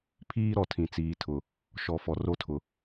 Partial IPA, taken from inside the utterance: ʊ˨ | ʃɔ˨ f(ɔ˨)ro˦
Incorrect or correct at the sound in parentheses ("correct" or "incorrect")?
correct